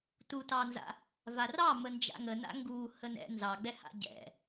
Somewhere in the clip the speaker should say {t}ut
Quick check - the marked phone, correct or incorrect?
correct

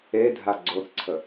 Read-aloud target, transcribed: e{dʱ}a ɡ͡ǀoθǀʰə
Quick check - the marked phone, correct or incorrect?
correct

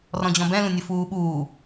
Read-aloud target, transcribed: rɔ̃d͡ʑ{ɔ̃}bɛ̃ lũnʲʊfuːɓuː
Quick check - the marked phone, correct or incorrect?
correct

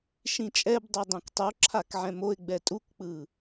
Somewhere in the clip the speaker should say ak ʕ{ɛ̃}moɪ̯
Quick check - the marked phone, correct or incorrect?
correct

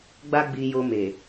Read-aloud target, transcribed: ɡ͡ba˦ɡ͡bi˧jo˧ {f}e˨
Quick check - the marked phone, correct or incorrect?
incorrect: m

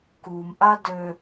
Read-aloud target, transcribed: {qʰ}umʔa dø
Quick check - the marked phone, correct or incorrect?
incorrect: k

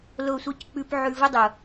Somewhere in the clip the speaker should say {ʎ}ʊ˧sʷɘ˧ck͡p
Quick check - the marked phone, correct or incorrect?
incorrect: l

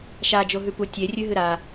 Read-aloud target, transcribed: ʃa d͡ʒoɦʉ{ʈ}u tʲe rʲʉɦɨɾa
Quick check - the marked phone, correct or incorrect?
incorrect: p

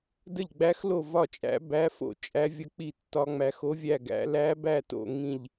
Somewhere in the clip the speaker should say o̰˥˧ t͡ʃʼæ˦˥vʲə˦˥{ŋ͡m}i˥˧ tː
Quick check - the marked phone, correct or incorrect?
incorrect: k͡p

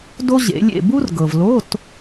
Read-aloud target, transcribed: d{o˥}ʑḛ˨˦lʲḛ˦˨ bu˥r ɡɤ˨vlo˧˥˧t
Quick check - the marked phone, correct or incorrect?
correct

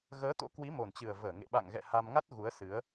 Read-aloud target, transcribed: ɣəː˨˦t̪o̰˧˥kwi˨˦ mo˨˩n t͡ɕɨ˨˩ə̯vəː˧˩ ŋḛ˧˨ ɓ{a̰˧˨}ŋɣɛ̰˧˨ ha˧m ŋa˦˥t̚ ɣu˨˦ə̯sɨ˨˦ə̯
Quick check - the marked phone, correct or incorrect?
correct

